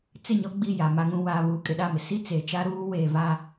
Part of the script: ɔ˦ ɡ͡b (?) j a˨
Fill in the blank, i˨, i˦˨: i˦˨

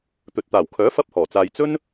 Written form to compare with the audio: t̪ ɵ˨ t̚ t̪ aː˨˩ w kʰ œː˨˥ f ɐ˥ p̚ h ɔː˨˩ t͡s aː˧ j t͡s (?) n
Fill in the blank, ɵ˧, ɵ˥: ɵ˥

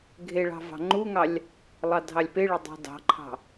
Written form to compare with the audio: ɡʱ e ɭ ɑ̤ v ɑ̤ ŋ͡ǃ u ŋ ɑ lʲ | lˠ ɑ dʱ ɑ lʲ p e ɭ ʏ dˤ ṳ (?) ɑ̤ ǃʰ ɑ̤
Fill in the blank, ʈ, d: d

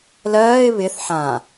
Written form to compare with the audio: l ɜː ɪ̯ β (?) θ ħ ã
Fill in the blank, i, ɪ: ɪ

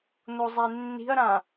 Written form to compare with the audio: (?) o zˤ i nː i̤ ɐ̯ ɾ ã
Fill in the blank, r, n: n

